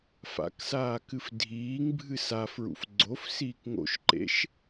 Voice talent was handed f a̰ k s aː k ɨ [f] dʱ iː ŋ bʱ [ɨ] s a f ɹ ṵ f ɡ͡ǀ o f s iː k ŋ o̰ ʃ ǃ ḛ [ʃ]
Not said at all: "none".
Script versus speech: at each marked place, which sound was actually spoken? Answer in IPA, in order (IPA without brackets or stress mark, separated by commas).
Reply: f, ɨ, ʃ